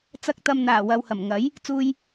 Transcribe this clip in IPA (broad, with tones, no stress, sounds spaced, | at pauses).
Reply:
t͡s ɐ˧ k̚ t̪ ɐ˨ m n̪ aː˨˩ w ɐ˨ w h ɐ˨˩ m ŋ ɐ˨˥ j | t͡s uː˧ j